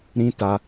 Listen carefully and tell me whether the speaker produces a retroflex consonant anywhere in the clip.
no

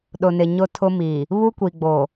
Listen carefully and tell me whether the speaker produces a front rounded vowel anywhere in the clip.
no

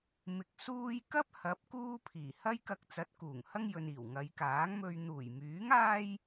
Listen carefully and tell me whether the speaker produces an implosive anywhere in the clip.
no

